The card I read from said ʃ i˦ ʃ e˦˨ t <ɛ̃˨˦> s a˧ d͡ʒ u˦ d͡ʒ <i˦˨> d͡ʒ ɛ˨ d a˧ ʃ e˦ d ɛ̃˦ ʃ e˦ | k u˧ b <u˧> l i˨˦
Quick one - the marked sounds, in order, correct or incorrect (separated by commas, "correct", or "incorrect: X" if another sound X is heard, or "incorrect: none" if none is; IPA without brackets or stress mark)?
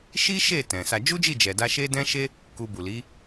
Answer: incorrect: ɛ̃˨, correct, incorrect: u˨